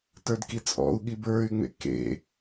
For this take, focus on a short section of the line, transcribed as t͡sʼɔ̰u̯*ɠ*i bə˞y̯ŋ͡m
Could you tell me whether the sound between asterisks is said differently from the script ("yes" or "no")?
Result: no